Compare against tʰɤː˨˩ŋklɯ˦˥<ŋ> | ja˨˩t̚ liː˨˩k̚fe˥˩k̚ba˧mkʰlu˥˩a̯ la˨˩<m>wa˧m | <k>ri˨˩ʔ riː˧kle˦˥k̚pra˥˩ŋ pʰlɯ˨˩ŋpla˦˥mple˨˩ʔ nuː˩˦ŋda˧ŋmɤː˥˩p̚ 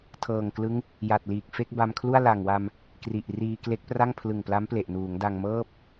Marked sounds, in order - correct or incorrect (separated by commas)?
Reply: correct, incorrect, correct